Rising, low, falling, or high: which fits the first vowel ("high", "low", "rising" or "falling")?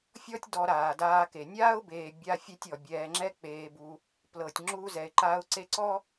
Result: high